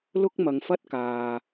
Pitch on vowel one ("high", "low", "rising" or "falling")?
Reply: high